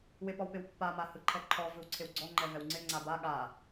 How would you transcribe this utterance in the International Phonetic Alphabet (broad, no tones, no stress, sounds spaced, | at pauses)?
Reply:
w ɪ p ɔ w p ɪ w pː a m a h ɯ ǃʰ ɛ ǃʰ ɔ v ɯ w ǀʰ ɪ w ɡ͡ǀ ɔ ŋ͡ǃ ɛ v ɛ w ŋ͡ǀ ɪ ŋ͡ǀ a b a ɠ a